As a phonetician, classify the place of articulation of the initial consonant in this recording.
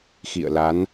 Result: velar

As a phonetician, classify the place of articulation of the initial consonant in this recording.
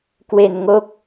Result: velar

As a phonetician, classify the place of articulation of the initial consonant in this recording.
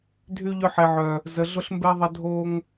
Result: alveolar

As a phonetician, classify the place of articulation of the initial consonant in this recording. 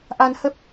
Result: glottal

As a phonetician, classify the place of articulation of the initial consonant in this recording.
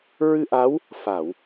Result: alveolar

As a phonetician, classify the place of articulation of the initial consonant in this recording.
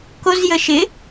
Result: velar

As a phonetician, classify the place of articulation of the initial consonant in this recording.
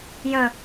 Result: palatal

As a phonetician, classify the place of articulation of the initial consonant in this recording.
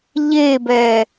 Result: palatal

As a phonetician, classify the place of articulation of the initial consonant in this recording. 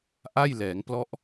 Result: glottal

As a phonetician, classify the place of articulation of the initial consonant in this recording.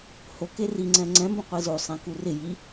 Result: glottal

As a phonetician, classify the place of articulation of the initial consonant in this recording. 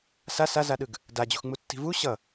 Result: alveolar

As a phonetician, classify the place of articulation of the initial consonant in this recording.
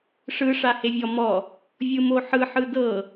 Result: retroflex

